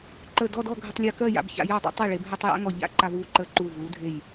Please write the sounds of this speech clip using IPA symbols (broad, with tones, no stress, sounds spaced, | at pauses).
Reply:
ǃ əː˧˩ d ɔ˥˧ d ɔ˥˧ ɡʱ ə˧ tˤ lʲ əː˧ k ɜ˥˧ j a̰˧ b ç a̰˧ j a˥˧ dˤ a̰˥ tˤ e˧˩ ɭ e˩˧ b ɦ ɜ˧ tˤ j a̰˥ ŋ ɔ˧˩ ʎ a̰˥˧ ǃ a˧ v uː˧ ǃ əː˧ ǃ uː˧˩ v uː˩˧ dʱ e˧˩ j